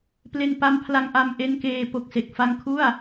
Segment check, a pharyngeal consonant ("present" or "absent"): absent